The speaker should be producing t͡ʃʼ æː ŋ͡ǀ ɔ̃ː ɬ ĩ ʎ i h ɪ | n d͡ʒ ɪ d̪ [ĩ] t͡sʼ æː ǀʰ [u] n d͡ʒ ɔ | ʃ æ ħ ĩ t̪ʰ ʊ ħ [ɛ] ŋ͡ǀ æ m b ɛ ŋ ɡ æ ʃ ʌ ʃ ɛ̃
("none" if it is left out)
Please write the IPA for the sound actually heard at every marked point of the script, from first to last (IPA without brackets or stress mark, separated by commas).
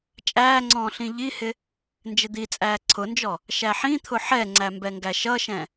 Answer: i, ʊ, ɛ